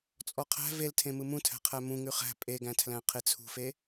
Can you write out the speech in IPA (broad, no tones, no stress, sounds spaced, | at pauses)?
t͡sʼ ɔ qʰ æ̤ v e l tʰ ẽ m ɯ m ũ tʰ æ̤ qʰ æ m ũ ŋ ʉ χ æ̤ pʼ e ɡ æ̃ tʰ l æ̃ qʰ e t͡sʰ ṳ f e